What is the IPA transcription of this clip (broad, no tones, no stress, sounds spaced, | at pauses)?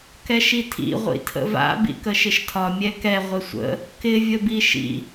k ɛ ʃ i tʰ ḭ ʁʷ ḭ tʰ ə̰ v a̰ b ḭ k ə ʃ ɪ ʃ tʰ ɒ mʲ ɛ k ɛ ʁʷ ɪ sʷ ə̰ | k ɪ vʲ ə b i ʃ ḭ